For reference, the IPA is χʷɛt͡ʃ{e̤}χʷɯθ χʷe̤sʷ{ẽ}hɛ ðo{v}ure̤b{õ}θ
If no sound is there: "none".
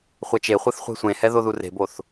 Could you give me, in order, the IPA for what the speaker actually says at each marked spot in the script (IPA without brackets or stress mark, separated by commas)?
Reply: e, ẽ, ð, o